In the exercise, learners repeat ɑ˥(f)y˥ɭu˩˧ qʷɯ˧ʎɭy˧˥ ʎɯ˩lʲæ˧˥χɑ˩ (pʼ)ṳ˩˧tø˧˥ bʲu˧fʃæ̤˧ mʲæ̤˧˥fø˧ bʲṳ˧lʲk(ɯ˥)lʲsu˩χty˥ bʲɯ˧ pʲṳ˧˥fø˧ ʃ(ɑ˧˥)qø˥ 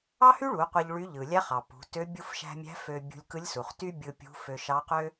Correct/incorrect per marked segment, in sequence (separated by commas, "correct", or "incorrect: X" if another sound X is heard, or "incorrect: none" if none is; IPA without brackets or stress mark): incorrect: h, incorrect: p, incorrect: ɯ˧˥, correct